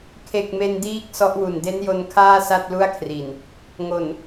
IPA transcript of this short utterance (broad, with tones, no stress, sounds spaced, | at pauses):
kʰ e˨˩ k̚ m e˧ n d iː˦˥ k̚ s ɔ˦˥ ʔ w u˨˩ n d e˦˥ n j o˧ n kʰ aː˥˩ s a˥˩ t̚ l u˥˩ a̯ kʰ r i˨˩ n | ŋ o˨˩ n